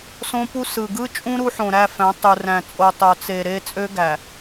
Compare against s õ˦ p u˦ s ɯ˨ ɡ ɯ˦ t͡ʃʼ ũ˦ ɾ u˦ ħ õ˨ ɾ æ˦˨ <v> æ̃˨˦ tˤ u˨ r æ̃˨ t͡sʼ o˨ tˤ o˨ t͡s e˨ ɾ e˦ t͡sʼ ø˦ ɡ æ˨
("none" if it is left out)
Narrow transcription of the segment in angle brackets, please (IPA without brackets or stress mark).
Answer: f